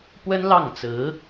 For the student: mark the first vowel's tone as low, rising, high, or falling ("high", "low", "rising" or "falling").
high